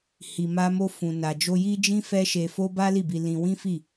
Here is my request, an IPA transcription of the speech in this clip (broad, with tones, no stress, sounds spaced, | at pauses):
h i˧ m a˦ m o˦ f ũ˧ n a˧ d͡ʒ o˦ j i˦ d͡ʒ ĩ˦ f ɛ˦ ʃ e˧ f o˦ b a˦ l i˦˨ b i˧ l ĩ˧ w ĩ˦ f i˦˨